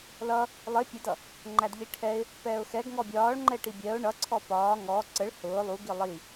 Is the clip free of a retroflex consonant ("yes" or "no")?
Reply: no